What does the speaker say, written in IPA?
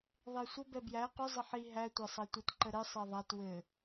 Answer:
ðˤ e sʷ ə b ɛ b j æ q ʏ zˤ ə ħ i ɦ æ tʷ a sˤ a tʷ ə t ǃ ə ɾ ɘ sˤ e ðˤ a t w ɘ

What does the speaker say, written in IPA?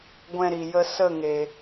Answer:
ɡʷ ɛ̃˧ ɾ i˨ j ə˧ s ə˦˨ ŋ e˨

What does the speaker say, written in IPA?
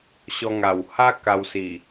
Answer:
ɕ ɔ˧ ŋ a˨˩ w h a˦ k a˧ w s i˨˩

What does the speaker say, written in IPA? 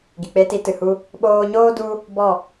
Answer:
ɡ i˨ k͡p e˧ t i˧ t ɨ˨ h u˧ | ɓ oː˧ ɲ oː˦ d u˦ | b ɔ˦˨

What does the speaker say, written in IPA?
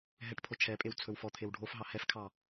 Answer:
ɦ ɛ ʈ pʰ o t͡ʃʰ ɛ pʼ e w t͡sʰ ɵ w f ɔ t̪ʰ e w ɖʱ o f ɦ ɑ h ɛ f kʰ ɑ

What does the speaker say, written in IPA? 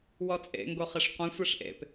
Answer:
w ɔ t͡sʼ ḛ ŋ ɡ o χ e ʂ qʷ ɛ̃ sʷ ɛ ʂ ʔ ḛ p

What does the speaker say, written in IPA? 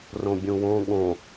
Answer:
r õ bʲ ũ w õ ɠ õ

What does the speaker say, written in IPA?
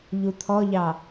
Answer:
ʎ u t̪ʰ ɔ ʎ ɑ

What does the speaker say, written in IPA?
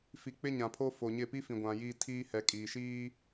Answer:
f i˨ k͡p ɪ˦ ɲ ã˨ pʰ o˦ f o˨ ɲ ɪ˦˨ p i˦ f ĩ˨ ɡʷ ã˨ j iː˦ tʰ iː˦ h ɛ˨ kʼ iː˨ ʃ iː˦

